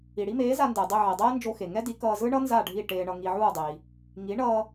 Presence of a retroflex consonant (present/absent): present